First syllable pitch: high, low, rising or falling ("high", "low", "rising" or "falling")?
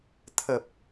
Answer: low